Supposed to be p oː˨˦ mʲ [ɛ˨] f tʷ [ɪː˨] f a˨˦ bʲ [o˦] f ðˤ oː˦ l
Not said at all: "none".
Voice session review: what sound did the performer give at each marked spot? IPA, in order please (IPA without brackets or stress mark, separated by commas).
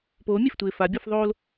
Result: e˨, ɪː˨, ɔ˦